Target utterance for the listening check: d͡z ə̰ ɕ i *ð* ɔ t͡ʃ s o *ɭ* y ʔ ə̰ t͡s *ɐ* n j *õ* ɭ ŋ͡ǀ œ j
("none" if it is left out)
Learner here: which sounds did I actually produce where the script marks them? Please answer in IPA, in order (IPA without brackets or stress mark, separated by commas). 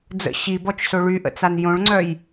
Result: b, ɭ, a, õ